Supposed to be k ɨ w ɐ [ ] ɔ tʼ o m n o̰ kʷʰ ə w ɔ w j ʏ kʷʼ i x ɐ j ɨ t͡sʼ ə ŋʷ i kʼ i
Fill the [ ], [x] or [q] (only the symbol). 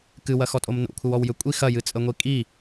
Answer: x